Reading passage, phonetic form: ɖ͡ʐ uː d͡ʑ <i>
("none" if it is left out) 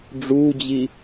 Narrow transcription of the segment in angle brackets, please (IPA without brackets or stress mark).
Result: i